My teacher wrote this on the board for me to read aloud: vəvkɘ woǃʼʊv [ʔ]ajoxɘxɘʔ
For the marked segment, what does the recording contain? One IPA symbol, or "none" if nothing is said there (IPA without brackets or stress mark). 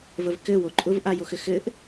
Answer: ʔ